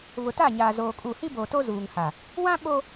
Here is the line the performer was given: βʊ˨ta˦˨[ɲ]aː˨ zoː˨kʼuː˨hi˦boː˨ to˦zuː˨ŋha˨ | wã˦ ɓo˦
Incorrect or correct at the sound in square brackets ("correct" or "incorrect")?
correct